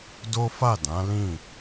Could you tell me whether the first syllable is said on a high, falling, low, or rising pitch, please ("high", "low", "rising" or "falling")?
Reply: high